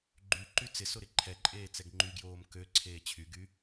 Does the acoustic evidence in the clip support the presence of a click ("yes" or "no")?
yes